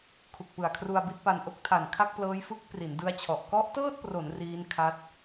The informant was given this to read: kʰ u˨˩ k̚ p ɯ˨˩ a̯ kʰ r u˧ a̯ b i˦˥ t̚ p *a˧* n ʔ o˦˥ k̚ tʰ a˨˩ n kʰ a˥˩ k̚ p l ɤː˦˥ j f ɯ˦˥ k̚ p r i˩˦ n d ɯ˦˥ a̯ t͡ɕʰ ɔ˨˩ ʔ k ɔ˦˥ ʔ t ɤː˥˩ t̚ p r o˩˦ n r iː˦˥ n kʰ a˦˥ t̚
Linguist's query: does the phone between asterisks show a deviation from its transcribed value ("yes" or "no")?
no